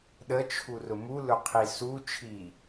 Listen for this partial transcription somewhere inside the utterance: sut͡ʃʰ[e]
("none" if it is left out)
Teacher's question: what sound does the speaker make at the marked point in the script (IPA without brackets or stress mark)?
i